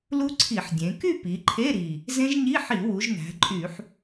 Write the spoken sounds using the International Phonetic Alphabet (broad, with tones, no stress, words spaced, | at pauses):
lu˦˥ǀʰi˧˩˧ħdʲẽ˩˧ ky˥˧ pi˩˧ǃʰe˧˥˧ɾi˨˩ | zẽ˦˥ʒɲi˧˥˧ ħi˧˩˧wu˩˧ʒ næ̤˩˧ǃʼy˧˩˧ħ